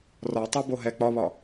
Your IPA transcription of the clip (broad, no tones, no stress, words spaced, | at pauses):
rɒtˤe boɦɛ k͡pɒβɒ